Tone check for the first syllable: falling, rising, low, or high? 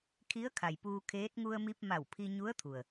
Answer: rising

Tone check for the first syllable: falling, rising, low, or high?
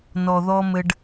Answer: low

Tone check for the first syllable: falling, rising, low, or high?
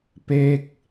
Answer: falling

